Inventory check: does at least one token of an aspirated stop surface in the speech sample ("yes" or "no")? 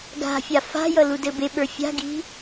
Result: no